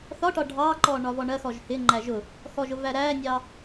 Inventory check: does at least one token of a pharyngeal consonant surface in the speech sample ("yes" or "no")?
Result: no